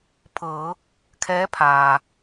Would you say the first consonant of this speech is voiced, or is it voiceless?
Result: voiceless